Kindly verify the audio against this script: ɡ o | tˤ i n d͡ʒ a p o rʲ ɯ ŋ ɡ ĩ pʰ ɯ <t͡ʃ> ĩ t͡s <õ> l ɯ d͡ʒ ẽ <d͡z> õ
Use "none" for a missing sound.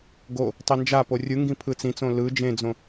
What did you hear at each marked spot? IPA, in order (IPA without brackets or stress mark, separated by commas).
t͡s, õ, d͡z